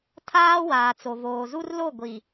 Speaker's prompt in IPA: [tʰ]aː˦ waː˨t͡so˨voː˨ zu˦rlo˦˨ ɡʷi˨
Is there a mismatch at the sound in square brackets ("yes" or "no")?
no